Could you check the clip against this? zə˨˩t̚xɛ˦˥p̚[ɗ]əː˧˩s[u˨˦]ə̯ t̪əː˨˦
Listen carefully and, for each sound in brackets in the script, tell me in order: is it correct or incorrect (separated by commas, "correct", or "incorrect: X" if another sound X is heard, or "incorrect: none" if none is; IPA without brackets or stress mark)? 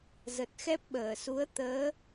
incorrect: ɓ, correct